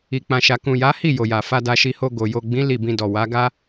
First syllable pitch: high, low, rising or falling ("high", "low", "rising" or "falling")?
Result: low